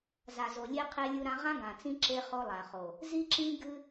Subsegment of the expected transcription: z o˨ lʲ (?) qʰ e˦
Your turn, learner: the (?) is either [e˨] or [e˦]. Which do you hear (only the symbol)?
e˦